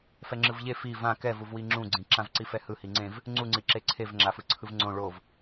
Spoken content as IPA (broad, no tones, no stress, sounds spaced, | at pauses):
f ɛ ŋ͡ǁ ɯ v ʎ e f i v ã k ɛ v u v w i ŋ͡ǁ ũ ɡ͡ǀ ĩ ǁ ã v ǀ i f ɛ h ɯ h i ŋ͡ǀ ẽ v | ŋ͡ǀ u ŋ͡ǀ i ǁ e ǀʰ e v ŋ͡ǁ a f ɯ ǀʰ ɯ v ŋ͡ǀ õ ɭ o v